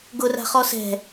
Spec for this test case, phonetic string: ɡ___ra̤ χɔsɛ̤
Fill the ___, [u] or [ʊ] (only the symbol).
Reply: ʊ